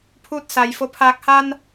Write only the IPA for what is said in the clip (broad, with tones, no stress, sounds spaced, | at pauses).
pʰ uː˥˨ t̚ s a˩˧ j f o˧˩ pʰ aː˧˩ k̚ h a˧ n